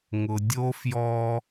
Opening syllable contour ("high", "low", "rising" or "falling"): low